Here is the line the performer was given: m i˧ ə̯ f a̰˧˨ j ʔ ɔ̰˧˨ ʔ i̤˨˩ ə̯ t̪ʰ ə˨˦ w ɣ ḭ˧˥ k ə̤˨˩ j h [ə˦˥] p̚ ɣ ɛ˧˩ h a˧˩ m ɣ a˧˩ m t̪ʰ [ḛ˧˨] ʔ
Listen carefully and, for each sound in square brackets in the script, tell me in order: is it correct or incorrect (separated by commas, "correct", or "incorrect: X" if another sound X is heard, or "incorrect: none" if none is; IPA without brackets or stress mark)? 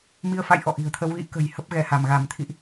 correct, incorrect: ḭ˧˨